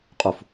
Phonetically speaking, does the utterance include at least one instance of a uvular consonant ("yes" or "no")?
yes